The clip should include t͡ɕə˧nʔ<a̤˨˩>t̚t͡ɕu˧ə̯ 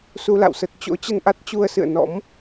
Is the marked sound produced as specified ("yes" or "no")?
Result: no